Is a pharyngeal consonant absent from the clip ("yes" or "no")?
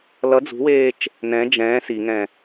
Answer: yes